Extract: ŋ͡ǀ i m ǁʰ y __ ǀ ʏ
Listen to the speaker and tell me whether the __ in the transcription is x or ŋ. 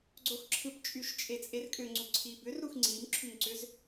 ŋ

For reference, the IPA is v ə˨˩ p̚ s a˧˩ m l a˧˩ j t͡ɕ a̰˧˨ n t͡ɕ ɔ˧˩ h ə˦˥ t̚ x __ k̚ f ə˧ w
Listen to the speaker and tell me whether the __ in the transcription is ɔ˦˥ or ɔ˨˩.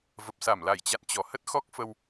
ɔ˦˥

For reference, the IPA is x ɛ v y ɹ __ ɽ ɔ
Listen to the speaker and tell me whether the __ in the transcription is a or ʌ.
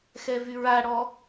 a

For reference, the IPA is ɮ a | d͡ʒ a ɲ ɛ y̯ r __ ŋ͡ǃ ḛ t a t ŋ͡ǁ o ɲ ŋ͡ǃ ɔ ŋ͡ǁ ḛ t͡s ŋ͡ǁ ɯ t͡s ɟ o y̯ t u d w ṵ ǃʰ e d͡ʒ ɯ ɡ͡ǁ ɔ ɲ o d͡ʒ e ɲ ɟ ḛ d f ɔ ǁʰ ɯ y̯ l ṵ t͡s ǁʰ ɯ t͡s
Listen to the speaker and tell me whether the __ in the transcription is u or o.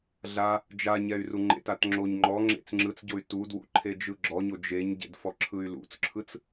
u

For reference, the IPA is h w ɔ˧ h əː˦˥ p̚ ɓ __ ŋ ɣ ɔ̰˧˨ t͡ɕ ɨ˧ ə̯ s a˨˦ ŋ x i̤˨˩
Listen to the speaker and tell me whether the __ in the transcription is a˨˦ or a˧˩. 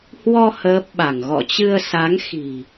a˧˩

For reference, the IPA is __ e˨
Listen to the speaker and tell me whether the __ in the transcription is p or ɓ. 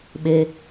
ɓ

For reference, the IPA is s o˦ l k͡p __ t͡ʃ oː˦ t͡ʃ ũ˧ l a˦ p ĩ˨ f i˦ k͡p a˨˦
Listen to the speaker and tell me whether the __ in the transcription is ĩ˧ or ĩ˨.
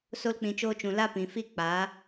ĩ˧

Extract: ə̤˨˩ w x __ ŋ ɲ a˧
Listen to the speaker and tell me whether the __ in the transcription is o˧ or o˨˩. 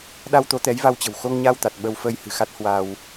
o˧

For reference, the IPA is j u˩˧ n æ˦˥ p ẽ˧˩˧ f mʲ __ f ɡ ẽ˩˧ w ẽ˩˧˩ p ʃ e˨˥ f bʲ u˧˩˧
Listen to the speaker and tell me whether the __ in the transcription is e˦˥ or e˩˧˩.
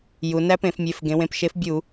e˩˧˩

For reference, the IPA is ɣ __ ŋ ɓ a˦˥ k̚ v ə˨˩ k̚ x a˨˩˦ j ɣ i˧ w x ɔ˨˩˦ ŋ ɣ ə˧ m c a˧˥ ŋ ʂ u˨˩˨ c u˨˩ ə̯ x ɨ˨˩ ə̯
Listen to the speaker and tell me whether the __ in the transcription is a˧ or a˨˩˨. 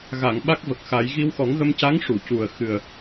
a˨˩˨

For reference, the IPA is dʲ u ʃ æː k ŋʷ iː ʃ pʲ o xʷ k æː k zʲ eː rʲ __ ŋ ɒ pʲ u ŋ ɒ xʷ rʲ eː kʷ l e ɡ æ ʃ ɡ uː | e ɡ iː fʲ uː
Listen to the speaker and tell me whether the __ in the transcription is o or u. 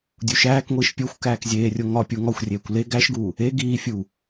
o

